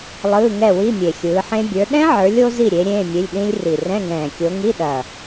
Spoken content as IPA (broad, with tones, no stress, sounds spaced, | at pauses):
lˠ ɯː˧˥˧ ŋ ɛ˥˨ w i˧˥˧ mʲ e˨˩ xʲ ɯː˨˦ ħ ẽ˦˥ bʲ ə˞˨˦ ɗ ɛ̃˦˥ ʕ ə˞˨˦ lʲ o˦˥ z i˥˨ ɾʲ e˨˦ ɾʲ ẽː˧˥˧ mʲ e˧˥˧ lʲ ɗ ĩ˦˥ lʲ r i˨˩ r ɛ̃˧˥˧ ŋ ɛ̃ː˨˩ kʲ o˨˦ ŋ i˧˥˧ ɗ ɐ˨˩